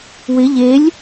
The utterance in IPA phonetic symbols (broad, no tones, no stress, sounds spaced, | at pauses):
w ɪ ʎ e lʲ